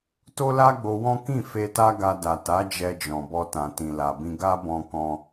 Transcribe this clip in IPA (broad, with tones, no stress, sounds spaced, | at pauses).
t o˦ l a˦ ɡ͡b o˧ w ɔ̃˦ k ĩ˦˨ f e˧ t a˦ ɡ a˧ d a˨ t a˨˦ d͡ʒ ɛ˧ d͡ʒ ɔ̃˨ b ɔ˧ t ã˨ t ĩ˨ l a˨ b ĩ˧ ɡ a˦ b ɔ̃˧ k ɔ̃˧